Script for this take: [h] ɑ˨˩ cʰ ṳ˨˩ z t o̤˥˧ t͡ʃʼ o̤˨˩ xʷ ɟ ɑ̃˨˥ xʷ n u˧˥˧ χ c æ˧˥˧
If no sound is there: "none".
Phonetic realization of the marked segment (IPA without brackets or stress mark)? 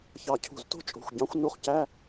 ç